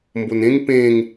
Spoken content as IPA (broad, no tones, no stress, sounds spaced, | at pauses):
m b o n ẽ ŋ p ẽ ŋ